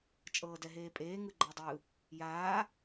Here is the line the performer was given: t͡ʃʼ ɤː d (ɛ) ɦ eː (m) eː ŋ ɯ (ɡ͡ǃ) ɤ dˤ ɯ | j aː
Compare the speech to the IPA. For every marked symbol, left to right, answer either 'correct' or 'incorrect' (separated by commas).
correct, incorrect, correct